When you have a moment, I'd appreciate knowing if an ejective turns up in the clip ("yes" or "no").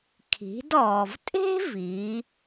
yes